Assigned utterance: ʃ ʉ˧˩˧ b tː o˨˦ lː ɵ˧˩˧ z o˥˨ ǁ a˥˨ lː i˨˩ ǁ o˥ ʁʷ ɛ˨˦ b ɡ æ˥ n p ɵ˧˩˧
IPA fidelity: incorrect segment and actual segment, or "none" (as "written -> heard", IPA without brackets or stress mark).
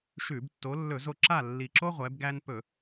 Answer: none